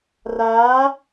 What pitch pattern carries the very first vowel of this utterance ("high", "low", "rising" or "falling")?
rising